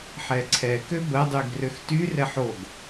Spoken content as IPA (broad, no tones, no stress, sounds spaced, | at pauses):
ħ ɛ ǀʰ ɛ k ø b ə dˤ y ɡ r ø x t y r ɛ ħ o ɡ